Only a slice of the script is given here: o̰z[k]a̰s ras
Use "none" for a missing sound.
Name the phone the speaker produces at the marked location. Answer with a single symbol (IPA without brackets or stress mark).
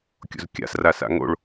kʲ